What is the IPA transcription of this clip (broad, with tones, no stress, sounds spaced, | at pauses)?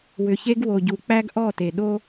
w ʏ˨ ç e˦ ɡ w o˨ ɟ u˨ k͡p æ˦ ɡ ʔ ɔ˦˨ t e˨ ɗ o˦